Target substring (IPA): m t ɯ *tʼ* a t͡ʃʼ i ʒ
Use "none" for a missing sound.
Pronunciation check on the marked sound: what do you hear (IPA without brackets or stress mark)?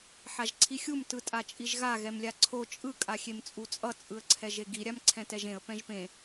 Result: tʼ